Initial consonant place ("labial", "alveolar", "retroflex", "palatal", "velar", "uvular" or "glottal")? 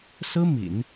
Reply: alveolar